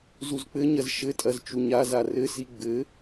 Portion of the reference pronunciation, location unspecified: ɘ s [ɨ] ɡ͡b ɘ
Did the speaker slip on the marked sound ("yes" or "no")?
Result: yes